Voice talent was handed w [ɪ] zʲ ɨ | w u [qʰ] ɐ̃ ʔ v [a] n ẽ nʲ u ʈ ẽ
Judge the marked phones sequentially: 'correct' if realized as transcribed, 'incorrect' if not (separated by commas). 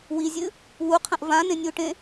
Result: incorrect, correct, incorrect